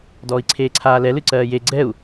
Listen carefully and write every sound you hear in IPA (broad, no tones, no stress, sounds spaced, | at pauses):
d ɔː i̯ ǀʰ eː ǀʰ aː l ɛ l ɨ ǀ ɜː j e ɡ͡ǀ ɛ u̯